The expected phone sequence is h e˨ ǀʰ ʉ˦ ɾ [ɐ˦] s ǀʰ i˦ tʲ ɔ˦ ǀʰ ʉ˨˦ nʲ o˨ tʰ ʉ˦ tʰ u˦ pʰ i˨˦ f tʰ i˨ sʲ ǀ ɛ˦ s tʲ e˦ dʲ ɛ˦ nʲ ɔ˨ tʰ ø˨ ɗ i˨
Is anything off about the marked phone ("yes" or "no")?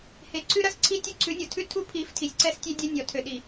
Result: no